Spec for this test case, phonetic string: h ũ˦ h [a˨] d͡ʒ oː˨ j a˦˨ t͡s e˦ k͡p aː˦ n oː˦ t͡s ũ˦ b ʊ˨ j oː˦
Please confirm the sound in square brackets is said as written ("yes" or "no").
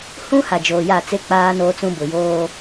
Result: yes